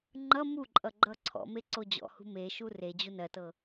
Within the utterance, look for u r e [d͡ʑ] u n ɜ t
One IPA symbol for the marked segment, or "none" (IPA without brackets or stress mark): d͡ʑ